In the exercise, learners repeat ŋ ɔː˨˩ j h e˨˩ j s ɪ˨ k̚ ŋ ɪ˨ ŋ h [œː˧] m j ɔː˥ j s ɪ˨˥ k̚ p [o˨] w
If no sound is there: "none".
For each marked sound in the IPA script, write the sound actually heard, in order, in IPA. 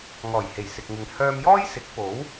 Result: œː˧, o˨˥

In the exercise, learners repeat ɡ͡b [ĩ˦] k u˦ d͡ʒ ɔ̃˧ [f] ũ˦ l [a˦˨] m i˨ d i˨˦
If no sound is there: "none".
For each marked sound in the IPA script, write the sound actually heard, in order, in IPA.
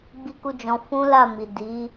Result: i˦, f, a˦˨

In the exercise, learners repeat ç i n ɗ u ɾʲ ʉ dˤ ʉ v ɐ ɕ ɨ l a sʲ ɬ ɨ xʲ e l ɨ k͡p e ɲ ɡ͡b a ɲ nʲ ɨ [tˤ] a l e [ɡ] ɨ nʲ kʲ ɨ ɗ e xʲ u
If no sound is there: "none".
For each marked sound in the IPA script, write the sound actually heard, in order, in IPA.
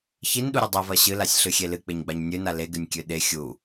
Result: n, ɡ

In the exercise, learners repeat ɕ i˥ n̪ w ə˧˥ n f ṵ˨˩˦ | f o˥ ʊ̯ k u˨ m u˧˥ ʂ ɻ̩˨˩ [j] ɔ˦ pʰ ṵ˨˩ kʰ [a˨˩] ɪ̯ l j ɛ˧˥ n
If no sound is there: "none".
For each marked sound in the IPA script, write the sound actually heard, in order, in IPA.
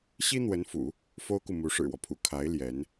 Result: w, a˧˥

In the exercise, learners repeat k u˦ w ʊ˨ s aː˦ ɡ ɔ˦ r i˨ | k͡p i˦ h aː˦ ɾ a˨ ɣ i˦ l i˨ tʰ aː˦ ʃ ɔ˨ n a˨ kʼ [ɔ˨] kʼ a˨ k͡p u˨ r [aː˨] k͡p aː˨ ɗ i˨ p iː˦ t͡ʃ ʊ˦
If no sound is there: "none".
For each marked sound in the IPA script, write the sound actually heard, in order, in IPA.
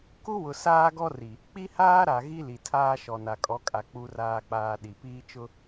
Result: ɔ˨˦, aː˨

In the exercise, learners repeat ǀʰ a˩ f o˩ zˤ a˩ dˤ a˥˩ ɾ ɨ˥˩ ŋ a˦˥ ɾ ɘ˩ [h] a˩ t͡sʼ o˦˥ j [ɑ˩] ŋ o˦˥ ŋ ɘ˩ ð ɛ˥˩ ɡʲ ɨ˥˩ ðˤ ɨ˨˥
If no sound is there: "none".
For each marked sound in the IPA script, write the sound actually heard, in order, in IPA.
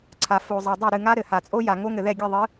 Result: h, a˩

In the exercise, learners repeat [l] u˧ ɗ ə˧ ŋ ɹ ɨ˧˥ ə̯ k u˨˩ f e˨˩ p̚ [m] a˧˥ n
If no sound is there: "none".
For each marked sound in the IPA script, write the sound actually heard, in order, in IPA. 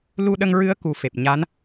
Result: l, ɲ

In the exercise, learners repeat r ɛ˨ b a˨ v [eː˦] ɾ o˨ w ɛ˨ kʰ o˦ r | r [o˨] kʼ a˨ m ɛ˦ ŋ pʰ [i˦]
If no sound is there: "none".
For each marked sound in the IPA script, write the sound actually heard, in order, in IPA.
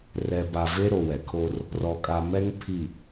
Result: e˦, ɔ˨, i˨

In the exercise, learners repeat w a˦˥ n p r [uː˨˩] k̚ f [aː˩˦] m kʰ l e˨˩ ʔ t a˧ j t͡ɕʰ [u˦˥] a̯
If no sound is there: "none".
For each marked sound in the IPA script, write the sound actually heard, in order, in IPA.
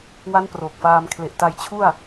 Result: oː˨˩, aː˧, u˥˩

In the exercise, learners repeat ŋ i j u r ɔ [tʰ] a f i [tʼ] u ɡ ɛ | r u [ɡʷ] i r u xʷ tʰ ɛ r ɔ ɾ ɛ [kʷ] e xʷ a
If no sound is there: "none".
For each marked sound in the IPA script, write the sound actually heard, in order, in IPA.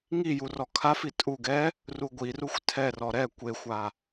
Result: kʰ, tʼ, ɡʷ, kʷ

